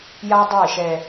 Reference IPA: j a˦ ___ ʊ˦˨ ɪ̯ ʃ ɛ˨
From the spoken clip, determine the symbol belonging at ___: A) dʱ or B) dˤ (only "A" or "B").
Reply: B